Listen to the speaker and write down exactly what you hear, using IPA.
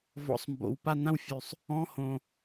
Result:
v ɔ̰˨˩ sˤ m b o̰˨˩ w p a˦˨ n ã˦˨ w fʲ ʉ˨˩ sˤ | ɔ̃˧˥˧ h õ˨˩

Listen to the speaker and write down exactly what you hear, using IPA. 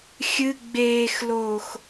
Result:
xʲ ɨ ɡ͡b eː x l oː x

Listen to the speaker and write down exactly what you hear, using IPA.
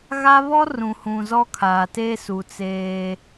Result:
ɣ a˦ β ɔ˦ r ũ˨ h ũ˨ z ɔ˦ kʰ aː˨ t e˦ s u˨ t͡s eː˦

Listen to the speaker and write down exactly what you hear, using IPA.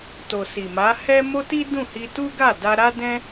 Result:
t o˨ s i˨ m a˨˦ h ɛ˦ m o˦ t i˦ d ũ˦˨ h i˧ t u˦ ɡ a˦˨ d a˧ ɾ a˦ d ɛ̃˦

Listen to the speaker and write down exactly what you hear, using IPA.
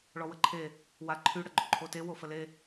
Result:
ɭ ɔ w ə ǃʰ e | w a ǃʰ y ɽ ə ɡ͡ǃ o ǃʰ o t e w o f ə l e

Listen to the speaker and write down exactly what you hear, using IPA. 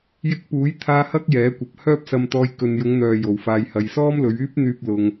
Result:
j ɪ˧ k̚ p uː˨˥ j t̪ʰ aː˧ h ɐ˥ k̚ j ɛː˨˥ kʷ ɐ˨ p̚ h œː˥ p̚ s ɐ˧ m t̪ ɔː˧ j k ɵ˨ n j ʊ˨˧ ŋ n̪ œː˨ j o˨˧ w f aː˧ j h ɐ˧ j s ɔː˥ m l ɵ˨˧ ɥ yː˥ p̚ n̪ yː˧ p̚ l ʊ˧ ŋ

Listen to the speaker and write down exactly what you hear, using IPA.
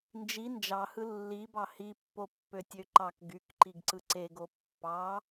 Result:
n d͡ʒ i n d͡ʒ ɑ h ɯ lː i b ɑ h i pː o pː ø tʲ ø ǃ ɑ k ɡ y k ǃ i ɡ ǀ ɯ ǀ e ɡ o pː ɑ

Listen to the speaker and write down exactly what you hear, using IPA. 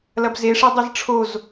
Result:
l ɐ b z e ʂ e dˤ e z ʈ͡ʂʰ o z

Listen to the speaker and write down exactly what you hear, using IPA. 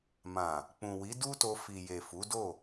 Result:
m ã˨ | k͡p ũ˨ w i˨˦ d u˦ t o˧ f i˨ j e˨ f u˨˦ d o˦˨

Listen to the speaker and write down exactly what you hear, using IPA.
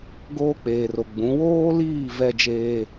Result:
ɡ oː˦ k͡p eː˨ r o˨ ɡ͡b ũ˨˦ w oː˦ l iː˦˨ v ɛ˦ d͡ʒ eː˦

